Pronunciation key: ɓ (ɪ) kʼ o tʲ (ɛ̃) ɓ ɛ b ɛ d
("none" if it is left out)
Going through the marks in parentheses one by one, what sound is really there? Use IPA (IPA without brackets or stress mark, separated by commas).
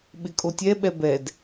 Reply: ɪ, ɛ